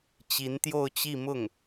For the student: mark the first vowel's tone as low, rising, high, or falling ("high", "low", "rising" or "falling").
rising